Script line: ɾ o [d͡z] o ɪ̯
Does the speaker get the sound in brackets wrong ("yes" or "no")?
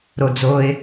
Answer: no